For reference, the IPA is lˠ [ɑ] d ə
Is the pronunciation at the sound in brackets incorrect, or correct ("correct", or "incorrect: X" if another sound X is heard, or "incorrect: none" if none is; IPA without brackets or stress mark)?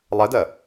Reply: incorrect: ə